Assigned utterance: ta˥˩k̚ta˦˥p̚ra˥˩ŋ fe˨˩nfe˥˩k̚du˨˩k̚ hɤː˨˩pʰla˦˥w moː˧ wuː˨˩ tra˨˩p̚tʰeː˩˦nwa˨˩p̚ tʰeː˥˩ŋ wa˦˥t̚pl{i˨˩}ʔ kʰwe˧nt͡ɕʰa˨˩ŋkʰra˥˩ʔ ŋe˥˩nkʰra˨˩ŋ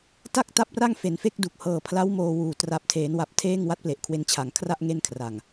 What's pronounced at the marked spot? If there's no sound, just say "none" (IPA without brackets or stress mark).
e˨˩